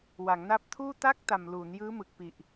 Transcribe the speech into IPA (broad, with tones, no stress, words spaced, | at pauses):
wa˩˦ŋna˦˥p̚tʰuː˥˩ ta˥˩k̚ta˨˩mluː˩˦n jɯː˦˥mɯ˨˩k̚pi˨˩ʔ